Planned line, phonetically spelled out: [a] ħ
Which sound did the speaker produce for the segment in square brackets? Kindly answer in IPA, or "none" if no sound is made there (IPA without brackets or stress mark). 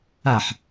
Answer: a